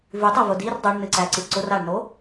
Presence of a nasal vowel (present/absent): absent